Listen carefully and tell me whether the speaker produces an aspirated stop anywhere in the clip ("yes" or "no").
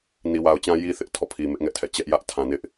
yes